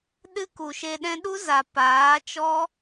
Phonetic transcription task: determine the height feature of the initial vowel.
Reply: high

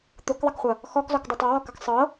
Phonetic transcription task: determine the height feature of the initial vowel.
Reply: high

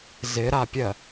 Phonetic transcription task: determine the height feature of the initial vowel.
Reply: high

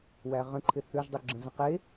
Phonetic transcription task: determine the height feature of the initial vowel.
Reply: low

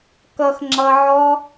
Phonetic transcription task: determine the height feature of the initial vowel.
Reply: mid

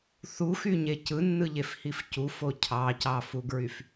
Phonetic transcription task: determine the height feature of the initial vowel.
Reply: high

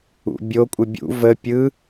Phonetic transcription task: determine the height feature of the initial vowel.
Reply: high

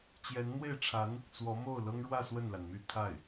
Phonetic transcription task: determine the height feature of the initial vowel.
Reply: mid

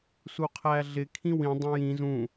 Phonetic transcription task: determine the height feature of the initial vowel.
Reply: high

